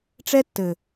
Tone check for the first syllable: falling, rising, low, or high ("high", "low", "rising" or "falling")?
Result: high